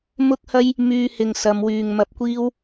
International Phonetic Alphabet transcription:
m ʊ˥ k̚ h ɐ˥ j | m yː˧ h ɪ˨ ŋ s ɐ˨˧ m w yː˨ ŋ m ɐ˧ p̚ kʷ iː˥ w

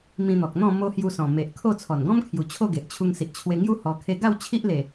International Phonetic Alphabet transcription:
m ĩ˧ n̪ ɔ˨ k̚ n̪ ɔ̃˥˧ m o˦ h j u˧ s ɔ̃˨˩ m e˨ ʔ kʰ o˥˧ t͡sʰ ɔ˨˩ n ɡ ɔ̃˦ m kʰ j u˨˩ t͡ɕʰ o˥˧ ɡ e˨ ʔ t͡ɕʰ u˧ ŋ s i˨ ʔ t͡ɕʰ w e˧ ŋ j u˦ h ɔ˧ kʰ e˦ ɡ a˥˧ w t͡ɕʰ i˦ ʔ l e˨˩

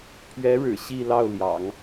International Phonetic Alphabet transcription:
pʰ ɥ ɛ˧˥ ɻ ɻ̩˨˩ ɕ i˥˧ l ɑ˥˩ ʊ̯ l j ɑ̰˨˩˦ ŋ

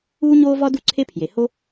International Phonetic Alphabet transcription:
uː˥ ɲ oː˥ v ɒ˥ d u˥ ǀʰ e˥ pʰ j e˩ h o˥

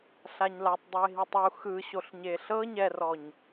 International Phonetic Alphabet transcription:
ɬ a ɲ l a tˤ dˤ o e̯ ɦ i tˤ u x ɯ ɕ o ɬ ɲ e ɬ ɤ ɲ ɛ r ɔ ɲ

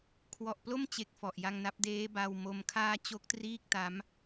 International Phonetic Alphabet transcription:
kʰ w ɔ˨˩ ʔ p l o˥˩ m t͡ɕ e˨˩ k̚ f ɔ˨˩ ʔ j a˧ ŋ n a˦˥ p̚ d eː˦˥ b a˧ w m o˧ m kʰ aː˥˩ t͡ɕ o˥˩ k̚ t r iː˥˩ k̚ t a˦˥ m

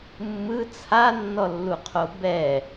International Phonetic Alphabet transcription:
mː ɯ t͡sʰ a nː ɔ lː u qʰ o b ɛ

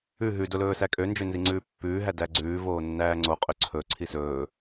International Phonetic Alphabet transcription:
ʉ ɦ ʉ d o l ɵː s æ kʼ ø n d͡ʒ ø n z i ŋ͡ǀ ʉː pː ʉː ɦ æ d æ ɡ͡ǀ ʉː v oː nː æː ŋ͡ǀ o qʼ ø ǀʰ ɵ ǀʰ i s ɵː

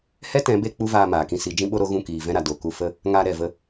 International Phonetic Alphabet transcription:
h ɛ˦ t ɛ̃˨˦ b e˧ k͡p u˦ v aː˧ m aː˨ k ĩ˧ s i˨˦ d͡ʒ ĩ˦ ɓ o˦ ɾ o˦ ɣ ũ˦˨ k iː˨ v ɛ̃˧ ɾ a˨ d o˨ k u˧ f ə˦ | ŋ a˧ ɾ ɛ˨ v ə˧

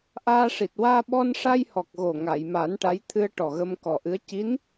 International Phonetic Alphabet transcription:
ʔ aː˧ ʂ i˨˩ t̚ w aː˧ ɓ ɔ˧ n ʂ a˧ j h ɔ˨˩ k̚ ɣ o˨˩ ŋ a˨˩˨ j m a˨˩˦ n ʈ a˧˥ j t̪ʰ ɨ˧ ə̯ ʈ ɔ˨˩ ɣ ə˧ m k ɔ˨˩ ʔ ɨ˧˥ ə̯ c i˧˥ n

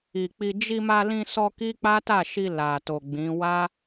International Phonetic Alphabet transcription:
i˨ k͡p i˧ d͡ʒ i˧ m a˧ l ĩ˧ s ɔ˧ k i˦ k͡p a˦ t a˦˨ ʃ i˧ l a˨ t o˨ ɡ͡b ĩ˨˦ w a˦

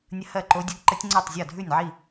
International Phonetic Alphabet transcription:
nʲ ə˦˥ h ɜ˥˩ ǃ o˦˥ dʲ ə˦˥ ɡ ǃ ə˦˥ tʲ ŋ͡ǀ ɜ˥˩ tˤ zʲ ɔ˥˩ dʱ ʉ˥˩ nʲ ʕ i˥˩

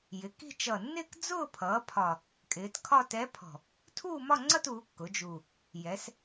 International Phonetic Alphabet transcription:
j ɪ˩˧ k i̤˥˧ t͡ʃ ʌː˨˩ nː ɪː˥˧ k d͡z ʊː˥˧ pʰ ʌː˩˧ pʰ ɒ˨˩ | kʼ ɪː˩˧ t kʰ ɒ˥˧ t ɛ˧˥ pʰ ɔ̤˨˩ | tʰ uː˥˧ m ɒ˥˧ ŋ͡ǀ ʌ˥˧ t uː˩˧ kː ʊ˩˧ d͡ʒ u˨˩ | j ɛ˩˧ s

